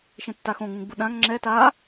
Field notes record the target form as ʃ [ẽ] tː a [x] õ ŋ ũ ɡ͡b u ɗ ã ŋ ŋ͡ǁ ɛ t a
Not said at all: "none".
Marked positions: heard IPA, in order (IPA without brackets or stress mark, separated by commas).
ẽ, x